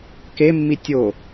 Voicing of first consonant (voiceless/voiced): voiceless